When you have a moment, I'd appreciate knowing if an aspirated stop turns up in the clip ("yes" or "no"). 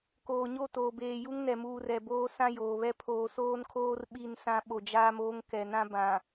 yes